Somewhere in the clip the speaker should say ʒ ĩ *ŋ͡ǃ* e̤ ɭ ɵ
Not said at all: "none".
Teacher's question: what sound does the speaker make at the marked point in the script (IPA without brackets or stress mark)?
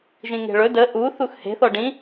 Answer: ŋ